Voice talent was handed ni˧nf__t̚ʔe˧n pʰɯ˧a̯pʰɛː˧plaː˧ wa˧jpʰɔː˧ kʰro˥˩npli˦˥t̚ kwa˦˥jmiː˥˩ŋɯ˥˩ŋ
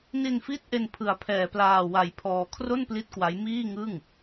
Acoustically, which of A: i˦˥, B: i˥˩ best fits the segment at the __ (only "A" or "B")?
A